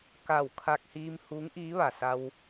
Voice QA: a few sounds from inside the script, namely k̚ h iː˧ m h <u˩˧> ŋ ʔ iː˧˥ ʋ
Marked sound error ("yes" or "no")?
yes